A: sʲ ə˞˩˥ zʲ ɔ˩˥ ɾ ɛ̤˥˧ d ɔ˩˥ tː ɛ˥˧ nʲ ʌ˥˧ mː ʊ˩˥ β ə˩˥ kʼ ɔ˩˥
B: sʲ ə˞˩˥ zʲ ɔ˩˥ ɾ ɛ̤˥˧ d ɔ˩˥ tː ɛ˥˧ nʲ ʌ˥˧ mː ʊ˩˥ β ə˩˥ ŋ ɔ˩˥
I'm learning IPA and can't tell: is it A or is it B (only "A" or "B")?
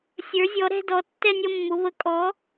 A